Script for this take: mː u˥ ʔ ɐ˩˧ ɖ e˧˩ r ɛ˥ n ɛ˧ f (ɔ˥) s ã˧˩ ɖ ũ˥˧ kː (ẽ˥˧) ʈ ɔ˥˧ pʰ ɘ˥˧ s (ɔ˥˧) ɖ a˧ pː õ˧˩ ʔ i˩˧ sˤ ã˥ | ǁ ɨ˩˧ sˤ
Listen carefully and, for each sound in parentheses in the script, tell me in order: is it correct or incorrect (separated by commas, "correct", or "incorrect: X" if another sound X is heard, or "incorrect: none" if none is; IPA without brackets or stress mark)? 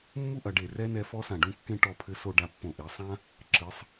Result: correct, correct, incorrect: o˥˧